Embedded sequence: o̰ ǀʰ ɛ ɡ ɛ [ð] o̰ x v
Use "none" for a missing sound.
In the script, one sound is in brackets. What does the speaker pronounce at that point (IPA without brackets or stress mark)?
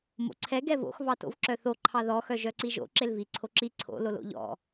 v